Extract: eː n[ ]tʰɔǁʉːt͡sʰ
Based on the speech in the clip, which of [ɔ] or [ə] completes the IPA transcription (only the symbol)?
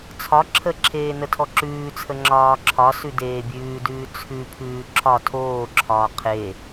ə